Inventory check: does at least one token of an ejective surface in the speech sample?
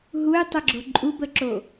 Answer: yes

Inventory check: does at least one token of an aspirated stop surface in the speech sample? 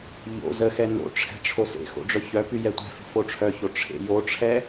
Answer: yes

